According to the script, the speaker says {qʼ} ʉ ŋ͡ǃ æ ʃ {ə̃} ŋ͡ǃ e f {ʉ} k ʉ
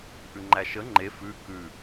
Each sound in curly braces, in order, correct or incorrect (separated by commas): incorrect, incorrect, correct